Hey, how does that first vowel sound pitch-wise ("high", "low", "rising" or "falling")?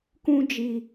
high